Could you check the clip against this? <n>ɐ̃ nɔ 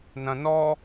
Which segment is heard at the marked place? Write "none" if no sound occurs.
n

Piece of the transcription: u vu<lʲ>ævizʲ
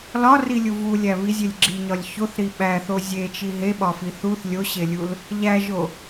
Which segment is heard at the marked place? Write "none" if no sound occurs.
lʲ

